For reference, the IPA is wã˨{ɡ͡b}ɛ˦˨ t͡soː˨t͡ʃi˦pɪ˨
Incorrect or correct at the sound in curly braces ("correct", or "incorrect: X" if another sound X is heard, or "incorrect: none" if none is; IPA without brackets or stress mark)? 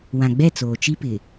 correct